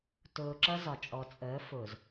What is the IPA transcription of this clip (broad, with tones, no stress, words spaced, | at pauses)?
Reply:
tʊː˨ǁʌ˦ zɒ˨t͡ʃʼɔ˨ t͡sʼəː˨˦fʊ˨z